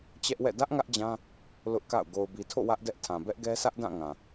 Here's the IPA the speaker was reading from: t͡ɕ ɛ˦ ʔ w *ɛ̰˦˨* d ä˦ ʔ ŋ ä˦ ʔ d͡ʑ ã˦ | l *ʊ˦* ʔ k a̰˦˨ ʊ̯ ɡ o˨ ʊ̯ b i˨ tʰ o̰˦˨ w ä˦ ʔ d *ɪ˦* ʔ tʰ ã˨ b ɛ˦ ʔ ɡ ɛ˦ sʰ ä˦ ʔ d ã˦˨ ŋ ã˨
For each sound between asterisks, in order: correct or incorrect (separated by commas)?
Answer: correct, correct, incorrect